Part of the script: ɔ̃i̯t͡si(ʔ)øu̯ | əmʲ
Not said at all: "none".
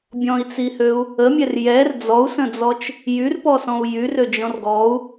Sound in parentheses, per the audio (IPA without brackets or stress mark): h